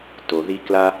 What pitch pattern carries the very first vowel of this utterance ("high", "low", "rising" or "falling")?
low